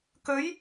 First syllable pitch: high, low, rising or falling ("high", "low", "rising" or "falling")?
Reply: rising